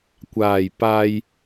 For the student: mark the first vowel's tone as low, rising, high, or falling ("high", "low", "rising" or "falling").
low